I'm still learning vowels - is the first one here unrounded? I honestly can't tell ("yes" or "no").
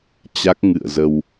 yes